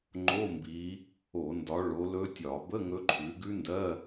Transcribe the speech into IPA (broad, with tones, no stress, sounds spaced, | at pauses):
ŋ͡ǃ o˧˥˧ m b i˨˦ | o˧˩˧ n d ɒ˨˦ ɭ o˨˦ l ɵ˦˥ tʲ ɒ˧˩˧ b ə˧˥˧ ŋ ɵ˦˥ ǃʰ ʉ˨˦ ɡ ʉ˦˥ n d ɜ˧˥˧